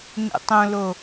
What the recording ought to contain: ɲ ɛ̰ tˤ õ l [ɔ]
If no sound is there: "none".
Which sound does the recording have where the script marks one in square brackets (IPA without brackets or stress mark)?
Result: o